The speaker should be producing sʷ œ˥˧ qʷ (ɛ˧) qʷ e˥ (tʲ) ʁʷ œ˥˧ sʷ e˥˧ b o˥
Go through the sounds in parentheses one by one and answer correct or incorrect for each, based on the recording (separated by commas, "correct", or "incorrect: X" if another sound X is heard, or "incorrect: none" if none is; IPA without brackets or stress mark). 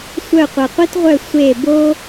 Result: correct, incorrect: t